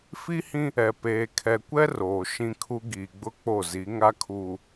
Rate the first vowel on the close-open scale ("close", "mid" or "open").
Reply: close